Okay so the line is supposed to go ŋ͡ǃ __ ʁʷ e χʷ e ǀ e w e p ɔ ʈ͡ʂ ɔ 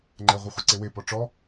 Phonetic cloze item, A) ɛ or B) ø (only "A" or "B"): A